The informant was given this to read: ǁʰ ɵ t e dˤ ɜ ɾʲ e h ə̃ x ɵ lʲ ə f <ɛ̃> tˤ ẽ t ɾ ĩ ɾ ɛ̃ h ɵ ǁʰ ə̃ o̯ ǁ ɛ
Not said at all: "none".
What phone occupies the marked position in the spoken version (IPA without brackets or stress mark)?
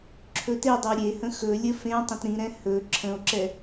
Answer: ẽ